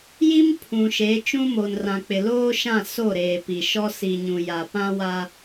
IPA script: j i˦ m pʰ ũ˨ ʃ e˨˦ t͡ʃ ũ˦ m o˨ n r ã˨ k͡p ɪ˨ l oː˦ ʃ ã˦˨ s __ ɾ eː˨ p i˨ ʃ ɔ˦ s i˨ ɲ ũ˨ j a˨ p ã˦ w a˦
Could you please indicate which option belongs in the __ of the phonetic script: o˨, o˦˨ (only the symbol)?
o˦˨